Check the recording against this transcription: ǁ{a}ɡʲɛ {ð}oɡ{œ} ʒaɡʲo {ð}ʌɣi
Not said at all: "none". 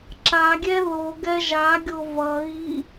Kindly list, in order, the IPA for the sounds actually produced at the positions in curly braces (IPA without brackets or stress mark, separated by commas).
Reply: a, ð, ɛ, v